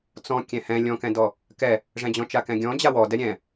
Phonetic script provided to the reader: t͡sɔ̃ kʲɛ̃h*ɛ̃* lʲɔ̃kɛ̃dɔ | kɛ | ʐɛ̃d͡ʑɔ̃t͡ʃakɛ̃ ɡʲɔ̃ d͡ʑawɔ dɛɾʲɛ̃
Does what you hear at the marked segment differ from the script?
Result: no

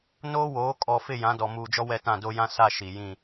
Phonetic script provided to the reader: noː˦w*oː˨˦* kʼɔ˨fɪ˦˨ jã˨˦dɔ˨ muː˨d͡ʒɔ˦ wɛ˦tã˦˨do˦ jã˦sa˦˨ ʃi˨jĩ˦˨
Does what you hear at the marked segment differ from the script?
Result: no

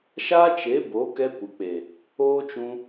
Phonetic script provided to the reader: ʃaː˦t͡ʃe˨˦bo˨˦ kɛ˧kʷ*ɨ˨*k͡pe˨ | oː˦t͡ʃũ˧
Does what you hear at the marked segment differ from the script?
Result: no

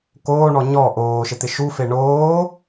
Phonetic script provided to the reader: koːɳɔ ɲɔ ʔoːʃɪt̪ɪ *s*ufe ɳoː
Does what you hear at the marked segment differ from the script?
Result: yes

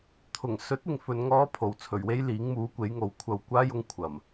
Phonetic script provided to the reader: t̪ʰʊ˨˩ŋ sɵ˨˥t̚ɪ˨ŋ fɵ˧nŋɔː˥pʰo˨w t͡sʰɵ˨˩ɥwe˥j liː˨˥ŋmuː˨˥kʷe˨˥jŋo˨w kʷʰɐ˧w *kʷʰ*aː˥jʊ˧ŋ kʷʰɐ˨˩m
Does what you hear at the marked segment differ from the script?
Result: yes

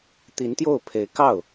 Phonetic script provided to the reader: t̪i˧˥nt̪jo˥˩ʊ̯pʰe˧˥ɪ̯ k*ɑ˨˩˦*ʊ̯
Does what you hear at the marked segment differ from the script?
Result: yes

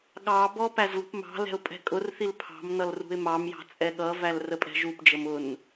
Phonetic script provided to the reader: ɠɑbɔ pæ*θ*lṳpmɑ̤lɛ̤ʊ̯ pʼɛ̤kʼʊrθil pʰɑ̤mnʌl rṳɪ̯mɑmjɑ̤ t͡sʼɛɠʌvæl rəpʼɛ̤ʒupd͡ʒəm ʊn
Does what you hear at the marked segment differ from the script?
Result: yes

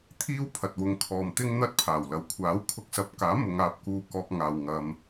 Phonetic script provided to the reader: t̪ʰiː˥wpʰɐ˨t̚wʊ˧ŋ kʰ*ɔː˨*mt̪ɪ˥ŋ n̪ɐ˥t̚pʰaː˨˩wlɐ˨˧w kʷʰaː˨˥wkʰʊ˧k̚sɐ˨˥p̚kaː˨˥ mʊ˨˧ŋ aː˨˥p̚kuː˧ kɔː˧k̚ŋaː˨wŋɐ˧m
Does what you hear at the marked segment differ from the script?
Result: no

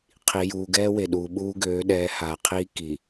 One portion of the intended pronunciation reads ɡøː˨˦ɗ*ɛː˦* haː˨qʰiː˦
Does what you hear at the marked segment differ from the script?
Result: yes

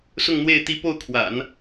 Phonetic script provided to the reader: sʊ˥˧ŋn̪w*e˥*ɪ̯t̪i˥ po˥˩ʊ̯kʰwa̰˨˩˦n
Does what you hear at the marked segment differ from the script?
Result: yes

